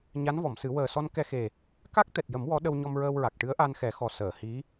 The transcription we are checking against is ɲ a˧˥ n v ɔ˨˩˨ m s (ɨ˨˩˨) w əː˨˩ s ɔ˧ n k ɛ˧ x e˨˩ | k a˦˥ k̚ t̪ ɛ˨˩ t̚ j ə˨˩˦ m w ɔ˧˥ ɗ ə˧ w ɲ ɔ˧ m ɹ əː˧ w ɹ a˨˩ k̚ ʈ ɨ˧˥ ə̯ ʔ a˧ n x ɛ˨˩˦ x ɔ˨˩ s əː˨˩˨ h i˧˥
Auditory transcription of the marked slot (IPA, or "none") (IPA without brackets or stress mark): ɨ˨˩˦